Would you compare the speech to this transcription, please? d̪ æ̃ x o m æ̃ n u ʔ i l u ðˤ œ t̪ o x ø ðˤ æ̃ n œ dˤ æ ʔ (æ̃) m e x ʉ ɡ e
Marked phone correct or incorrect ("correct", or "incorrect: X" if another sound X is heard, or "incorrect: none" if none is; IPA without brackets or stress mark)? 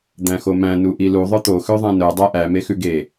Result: incorrect: æ